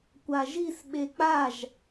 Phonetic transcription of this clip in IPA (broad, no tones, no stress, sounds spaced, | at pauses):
kʷ a ʒ i s ɓ e k͡p a ʒ